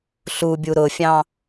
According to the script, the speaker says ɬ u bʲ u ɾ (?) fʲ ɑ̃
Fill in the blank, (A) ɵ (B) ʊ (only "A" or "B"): B